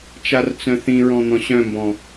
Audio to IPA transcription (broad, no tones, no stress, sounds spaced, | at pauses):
t͡ʃ a r t͡s œ̃ θ ĩ ɹ ɔ̃ n̪ ɔ̃ ɕ œ̃ m b ɔ̃